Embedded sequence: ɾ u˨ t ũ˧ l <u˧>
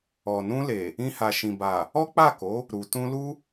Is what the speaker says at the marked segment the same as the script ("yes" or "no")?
no